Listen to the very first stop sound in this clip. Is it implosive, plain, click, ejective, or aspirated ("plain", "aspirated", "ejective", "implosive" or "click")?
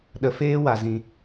implosive